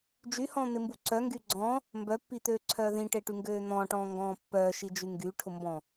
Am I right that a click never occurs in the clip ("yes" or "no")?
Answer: no